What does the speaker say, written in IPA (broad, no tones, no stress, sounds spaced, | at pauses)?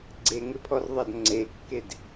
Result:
ɡ͡ǀ e ŋ ɪ pʰ ɔ r ðˤ ɐ d ŋ͡ǀ e kː e d